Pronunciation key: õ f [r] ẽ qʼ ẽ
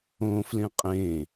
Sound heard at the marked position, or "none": l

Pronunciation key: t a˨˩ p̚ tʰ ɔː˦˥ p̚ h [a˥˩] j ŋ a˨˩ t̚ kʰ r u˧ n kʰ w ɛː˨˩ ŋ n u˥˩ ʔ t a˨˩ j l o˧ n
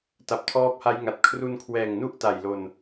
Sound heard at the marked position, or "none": a˦˥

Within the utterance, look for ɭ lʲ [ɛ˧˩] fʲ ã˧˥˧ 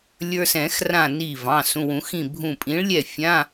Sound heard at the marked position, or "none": ɛ˧˩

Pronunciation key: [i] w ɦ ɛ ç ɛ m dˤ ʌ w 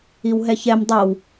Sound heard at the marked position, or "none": i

